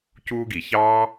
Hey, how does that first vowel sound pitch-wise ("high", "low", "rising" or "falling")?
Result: high